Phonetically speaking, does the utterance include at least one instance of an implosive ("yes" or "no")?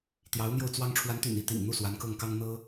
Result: no